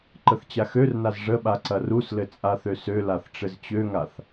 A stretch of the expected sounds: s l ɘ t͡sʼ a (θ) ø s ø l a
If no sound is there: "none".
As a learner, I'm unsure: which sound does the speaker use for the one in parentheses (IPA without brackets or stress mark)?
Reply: θ